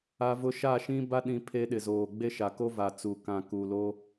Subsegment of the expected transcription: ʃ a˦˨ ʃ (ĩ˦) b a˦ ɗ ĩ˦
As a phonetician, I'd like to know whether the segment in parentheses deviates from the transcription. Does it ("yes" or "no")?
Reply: no